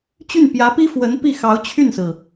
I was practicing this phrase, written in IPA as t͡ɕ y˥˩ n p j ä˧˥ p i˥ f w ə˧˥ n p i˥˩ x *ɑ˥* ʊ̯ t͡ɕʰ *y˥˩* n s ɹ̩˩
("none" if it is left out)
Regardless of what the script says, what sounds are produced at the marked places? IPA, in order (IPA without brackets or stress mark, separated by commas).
ɑ˧˥, y˥˩